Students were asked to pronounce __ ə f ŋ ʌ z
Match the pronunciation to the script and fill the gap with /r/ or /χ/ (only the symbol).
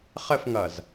χ